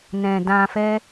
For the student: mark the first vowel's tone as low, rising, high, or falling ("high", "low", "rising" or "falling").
low